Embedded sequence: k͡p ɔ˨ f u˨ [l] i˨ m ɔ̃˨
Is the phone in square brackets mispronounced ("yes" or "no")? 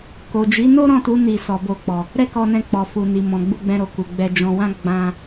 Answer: yes